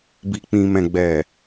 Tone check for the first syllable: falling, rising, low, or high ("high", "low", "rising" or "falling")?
low